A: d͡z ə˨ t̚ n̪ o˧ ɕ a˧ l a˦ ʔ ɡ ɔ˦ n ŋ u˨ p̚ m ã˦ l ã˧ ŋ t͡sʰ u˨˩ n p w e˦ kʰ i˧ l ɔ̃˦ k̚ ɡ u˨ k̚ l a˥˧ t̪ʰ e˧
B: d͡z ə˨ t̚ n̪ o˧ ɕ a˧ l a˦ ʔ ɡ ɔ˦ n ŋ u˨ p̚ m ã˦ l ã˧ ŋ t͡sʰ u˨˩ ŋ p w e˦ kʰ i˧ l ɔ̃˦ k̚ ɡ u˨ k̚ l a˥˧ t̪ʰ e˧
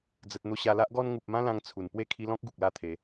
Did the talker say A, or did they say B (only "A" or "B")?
A